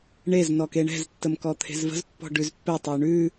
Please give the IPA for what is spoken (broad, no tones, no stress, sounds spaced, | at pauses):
ɳ e z n ɔ k e ɳ ɛ̤ z tː ə m k ɔ t̪ʰ e̤ z v ə̤ z pː ɔ̤ ɖ ʉ z pː ɛ tˤ ə y̯ ɳ ʉ